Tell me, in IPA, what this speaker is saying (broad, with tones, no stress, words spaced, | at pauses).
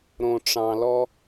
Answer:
ɾõ˨ʈ͡ʂɑ̃˨lɔ˦